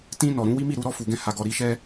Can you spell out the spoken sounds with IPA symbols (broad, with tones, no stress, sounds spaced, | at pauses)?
t ĩ˧ n ɔ˨ ɾ ũ˨˦ w i˦ m i˦˨ ɾ u˧ ɾ ɔ˧ f u˨ ɡ ɛ̃˧ h a˨ ɡ ɔ˨ ɾ i˨˦ ʃ ɛ˦